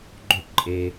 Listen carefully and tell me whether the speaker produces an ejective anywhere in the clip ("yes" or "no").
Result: yes